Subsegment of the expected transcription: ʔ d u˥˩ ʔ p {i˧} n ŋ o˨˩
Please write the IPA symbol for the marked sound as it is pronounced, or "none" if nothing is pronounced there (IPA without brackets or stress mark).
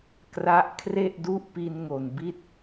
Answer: i˧